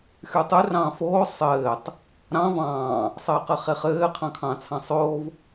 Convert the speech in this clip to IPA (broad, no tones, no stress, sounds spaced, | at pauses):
x y tˤ y r ɑ̃ː f oː sˤ ɘː tˤ | ɾ ɑ̃ v ɑ̃ː | sˤ ɘː q ɘ χ e χ ɘː qʰ ɑ̃ kʰ ɑ̃ː t͡sʰ ɑ̃ sˤ oː v